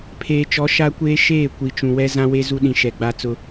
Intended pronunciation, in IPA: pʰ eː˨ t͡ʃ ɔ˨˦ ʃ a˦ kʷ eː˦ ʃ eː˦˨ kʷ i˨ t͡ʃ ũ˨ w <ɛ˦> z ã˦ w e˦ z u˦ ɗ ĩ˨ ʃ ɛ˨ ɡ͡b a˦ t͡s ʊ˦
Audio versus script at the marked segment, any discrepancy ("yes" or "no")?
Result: no